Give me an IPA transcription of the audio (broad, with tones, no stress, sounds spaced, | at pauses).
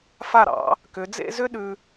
f a˧˩ ɾ ɑ̰˩˧ | k ʏ˩˧ d͡z ḛ˥˧ z ʏ˥ ɗ ʉ˧